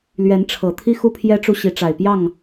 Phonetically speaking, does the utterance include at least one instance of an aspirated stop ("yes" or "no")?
yes